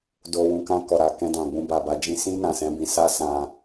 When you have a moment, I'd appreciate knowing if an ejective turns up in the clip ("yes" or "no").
no